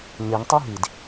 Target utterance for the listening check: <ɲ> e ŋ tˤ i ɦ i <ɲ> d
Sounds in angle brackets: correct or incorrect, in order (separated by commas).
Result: correct, incorrect